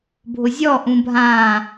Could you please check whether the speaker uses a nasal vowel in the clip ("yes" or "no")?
yes